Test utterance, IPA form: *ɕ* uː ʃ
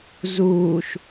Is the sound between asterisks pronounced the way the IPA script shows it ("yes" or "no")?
no